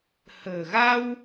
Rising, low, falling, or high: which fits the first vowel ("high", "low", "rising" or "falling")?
low